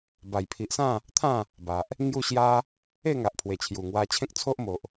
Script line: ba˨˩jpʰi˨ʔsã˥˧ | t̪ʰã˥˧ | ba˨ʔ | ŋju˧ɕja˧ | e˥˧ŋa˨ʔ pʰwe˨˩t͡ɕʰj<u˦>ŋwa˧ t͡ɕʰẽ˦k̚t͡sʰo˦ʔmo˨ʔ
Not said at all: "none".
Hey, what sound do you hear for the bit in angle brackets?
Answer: u˨˩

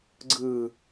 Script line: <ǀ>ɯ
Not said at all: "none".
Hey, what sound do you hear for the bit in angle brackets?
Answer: ɡ͡ǀ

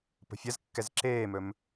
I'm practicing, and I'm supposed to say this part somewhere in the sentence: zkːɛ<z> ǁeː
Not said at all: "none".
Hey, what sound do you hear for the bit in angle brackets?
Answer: z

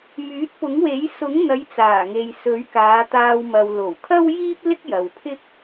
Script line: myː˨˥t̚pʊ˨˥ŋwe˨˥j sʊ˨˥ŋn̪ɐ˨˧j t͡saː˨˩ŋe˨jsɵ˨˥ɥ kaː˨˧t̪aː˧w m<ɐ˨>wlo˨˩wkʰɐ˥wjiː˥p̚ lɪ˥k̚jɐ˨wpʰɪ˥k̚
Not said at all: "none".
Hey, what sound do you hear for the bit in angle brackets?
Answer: ɐ˨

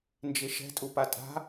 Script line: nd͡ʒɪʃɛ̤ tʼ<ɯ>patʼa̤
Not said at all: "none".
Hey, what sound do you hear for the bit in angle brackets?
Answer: u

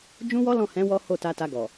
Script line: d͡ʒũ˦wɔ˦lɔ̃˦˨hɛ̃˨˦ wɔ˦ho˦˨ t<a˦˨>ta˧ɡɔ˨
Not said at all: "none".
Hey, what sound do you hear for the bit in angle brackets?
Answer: a˧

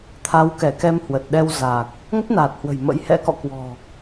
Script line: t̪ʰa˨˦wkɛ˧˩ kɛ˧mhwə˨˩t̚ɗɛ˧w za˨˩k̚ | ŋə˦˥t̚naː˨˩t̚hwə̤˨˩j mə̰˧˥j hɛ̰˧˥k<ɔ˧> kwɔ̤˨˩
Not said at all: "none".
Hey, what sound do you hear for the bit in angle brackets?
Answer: ɔ̰˧˨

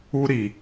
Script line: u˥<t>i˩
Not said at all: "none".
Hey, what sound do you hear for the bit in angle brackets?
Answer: ɾ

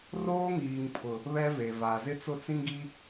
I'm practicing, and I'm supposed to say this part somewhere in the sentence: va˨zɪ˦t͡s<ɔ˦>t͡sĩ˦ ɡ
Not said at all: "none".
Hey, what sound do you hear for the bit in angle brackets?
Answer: ʊ˦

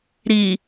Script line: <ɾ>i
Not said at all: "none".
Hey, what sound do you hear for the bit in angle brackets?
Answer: ɾ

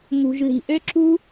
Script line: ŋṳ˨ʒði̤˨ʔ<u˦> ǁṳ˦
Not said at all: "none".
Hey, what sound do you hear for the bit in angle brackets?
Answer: ø˦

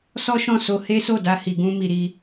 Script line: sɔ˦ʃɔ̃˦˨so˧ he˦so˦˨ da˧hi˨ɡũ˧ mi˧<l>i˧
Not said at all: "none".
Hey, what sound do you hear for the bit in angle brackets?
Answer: ɾ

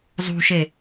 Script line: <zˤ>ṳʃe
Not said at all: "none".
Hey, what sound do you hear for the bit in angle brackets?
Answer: zˤ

